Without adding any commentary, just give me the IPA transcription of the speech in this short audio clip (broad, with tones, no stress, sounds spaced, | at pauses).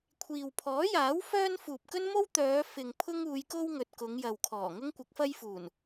kʷʰ iː˨ w pʰ ɔː˨˥ j aː˨˥ w f œː˥ n f uː˨ p̚ k ɵ˥ n m o˥ w t̪ œː˨˧ f ɪ˨ ŋ pʰ ʊ˥ ŋ uː˨˧ j k o˥ w ŋ ɵ˨ t̚ k ʊ˨˧ ŋ j ɐ˨ w kʰ ɔː˨˩ ŋ ʊ˥ ŋ kʷ ɪ˨˥ k̚ f ɐ˥ j f uː˨˩ n